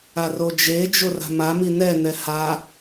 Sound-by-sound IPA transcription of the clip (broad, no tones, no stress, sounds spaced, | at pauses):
a r o d͡ʒ e d͡ʒ o r a̤ m a m i n ɛ n ɛ h a